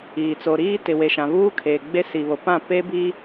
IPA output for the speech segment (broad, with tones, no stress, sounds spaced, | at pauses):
iː˨ t͡s o˨ ɾ iː˦ t ɪ˨ w e˨ ʃ ã˨ β uː˦ kʰ eː˨ ɡ͡b e˦ s i˨ β o˨ p ã˦˨ p e˦ b i˦